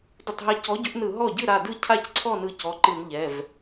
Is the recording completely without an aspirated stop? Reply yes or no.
no